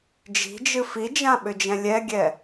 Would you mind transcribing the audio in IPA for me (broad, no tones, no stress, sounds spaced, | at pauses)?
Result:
d͡ʒ i̤ d͡ʒ ɨ f i d͡ʒ ã ɓ ʏ d͡ʒ ɛ̃ lʲ ɛ ɡʲ ɛ